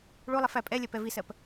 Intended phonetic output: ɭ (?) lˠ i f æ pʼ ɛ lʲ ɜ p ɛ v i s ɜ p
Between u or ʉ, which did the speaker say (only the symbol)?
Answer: u